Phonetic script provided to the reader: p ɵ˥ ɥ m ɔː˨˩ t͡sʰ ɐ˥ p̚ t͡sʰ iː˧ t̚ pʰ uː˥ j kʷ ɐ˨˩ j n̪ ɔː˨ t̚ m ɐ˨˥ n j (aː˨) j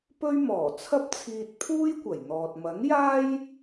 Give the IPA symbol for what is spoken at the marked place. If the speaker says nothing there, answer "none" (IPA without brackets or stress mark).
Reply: aː˥